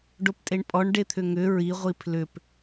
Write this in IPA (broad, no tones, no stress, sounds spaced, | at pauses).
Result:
ɖ o p tʼ e ɳ pʼ ɔ ɳ ɖ e t̪ʰ ʏ ŋ ʏ ɹ i ʁʷ i pʰ l ʏ p